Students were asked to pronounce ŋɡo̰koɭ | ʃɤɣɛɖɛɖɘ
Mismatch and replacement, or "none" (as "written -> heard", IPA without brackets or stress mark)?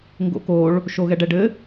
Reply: ɤ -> o